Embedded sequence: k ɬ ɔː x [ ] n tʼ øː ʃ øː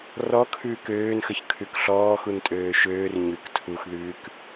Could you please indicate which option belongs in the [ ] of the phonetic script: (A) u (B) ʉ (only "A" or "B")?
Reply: A